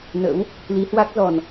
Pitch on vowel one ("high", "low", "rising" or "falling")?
rising